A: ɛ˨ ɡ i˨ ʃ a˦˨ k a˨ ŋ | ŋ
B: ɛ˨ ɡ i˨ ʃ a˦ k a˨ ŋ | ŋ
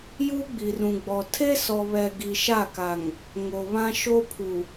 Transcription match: A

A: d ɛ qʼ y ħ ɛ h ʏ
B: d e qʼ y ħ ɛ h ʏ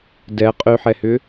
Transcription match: A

